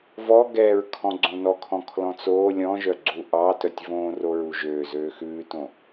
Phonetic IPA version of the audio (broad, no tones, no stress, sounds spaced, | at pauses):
v ɔ ɡ ɛ ɹ kʰ ɔ̃ ɡ͡ǀ õ n ɔ kʰ ɔ̃ kʰ l ɔ̃ t͡s oː lʲ ɔ̃ ʒ œ ɡ͡ǀ u ʔ ɑ t œ tʲ v õː r o ɹ u ʒ øː z øː x ʉː t õ